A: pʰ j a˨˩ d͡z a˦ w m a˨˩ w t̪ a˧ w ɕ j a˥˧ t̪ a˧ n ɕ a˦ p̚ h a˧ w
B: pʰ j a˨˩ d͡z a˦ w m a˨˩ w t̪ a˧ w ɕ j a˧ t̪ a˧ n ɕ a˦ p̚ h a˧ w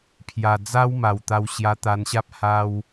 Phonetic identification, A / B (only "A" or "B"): B